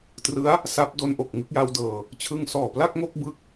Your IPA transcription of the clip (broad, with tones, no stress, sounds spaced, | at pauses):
t r ɯ˦˥ a̯ | s a˦˥ p̚ d o˧ n ʔ o˨˩ k̚ ŋ ɯ˥˩ k̚ j a˦˥ w d ɤː˧ | t͡ɕʰ ɯ˧ ŋ s ɔː˨˩ p l a˥˩ k̚ ŋ o˥˩ k̚ b ɯ˦˥ k̚